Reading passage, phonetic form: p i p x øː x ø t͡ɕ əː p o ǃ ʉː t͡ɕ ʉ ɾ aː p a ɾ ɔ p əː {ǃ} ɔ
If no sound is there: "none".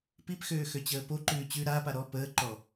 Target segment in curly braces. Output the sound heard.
ǃ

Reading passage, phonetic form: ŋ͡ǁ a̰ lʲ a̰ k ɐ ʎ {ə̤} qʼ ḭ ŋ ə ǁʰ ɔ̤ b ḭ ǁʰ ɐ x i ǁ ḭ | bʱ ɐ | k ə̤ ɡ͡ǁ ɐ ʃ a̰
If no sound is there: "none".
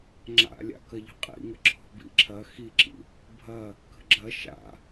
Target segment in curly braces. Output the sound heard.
ə̤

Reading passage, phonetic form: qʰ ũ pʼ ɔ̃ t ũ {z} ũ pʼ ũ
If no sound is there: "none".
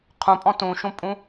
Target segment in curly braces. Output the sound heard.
ʃ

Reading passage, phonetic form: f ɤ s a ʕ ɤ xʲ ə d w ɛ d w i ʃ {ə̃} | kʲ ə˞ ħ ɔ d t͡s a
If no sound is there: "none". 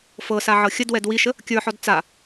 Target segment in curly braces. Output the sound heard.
ə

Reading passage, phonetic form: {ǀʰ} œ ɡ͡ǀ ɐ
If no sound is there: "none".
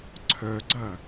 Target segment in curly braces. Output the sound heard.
ǀʰ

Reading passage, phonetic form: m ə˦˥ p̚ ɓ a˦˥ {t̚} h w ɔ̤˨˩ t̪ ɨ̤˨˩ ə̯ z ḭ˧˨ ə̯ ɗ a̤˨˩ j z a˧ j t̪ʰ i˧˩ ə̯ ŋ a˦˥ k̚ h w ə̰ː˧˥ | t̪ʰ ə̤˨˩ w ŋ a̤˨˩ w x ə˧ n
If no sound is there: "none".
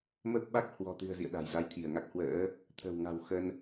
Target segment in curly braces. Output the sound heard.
k̚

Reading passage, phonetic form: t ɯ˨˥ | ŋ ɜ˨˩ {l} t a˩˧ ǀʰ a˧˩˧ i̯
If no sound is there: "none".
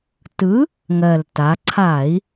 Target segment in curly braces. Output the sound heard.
l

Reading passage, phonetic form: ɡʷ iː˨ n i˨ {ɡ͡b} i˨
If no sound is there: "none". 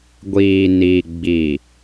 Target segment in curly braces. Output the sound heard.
ɡ͡b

